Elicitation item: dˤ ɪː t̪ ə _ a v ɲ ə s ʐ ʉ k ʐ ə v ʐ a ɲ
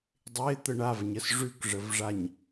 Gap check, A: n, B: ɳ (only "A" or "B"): B